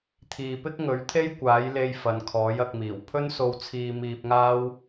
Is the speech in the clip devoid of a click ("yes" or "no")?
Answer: yes